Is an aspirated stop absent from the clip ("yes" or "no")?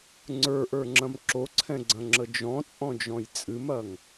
no